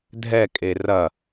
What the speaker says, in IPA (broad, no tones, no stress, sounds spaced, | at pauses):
dʱ ɛ kʼ e r ɐ